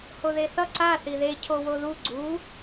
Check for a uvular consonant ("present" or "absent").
absent